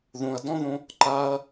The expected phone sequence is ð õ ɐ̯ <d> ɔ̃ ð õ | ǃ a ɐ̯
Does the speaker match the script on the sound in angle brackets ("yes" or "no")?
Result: yes